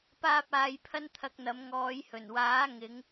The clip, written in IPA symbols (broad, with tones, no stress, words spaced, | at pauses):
paː˥p̚ aː˧jpʰɐ˥nt̪ʰɐ˧k̚n̪ɐ˨˧m ŋɔː˨˧jhɵ˨˩nwaː˨˥ ŋɪ˨˧ŋ